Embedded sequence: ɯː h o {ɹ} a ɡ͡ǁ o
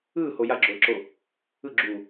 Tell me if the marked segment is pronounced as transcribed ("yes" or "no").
no